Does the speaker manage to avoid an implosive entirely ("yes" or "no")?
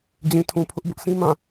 yes